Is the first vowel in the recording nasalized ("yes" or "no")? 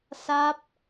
no